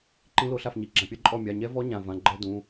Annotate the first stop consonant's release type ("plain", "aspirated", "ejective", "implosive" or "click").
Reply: click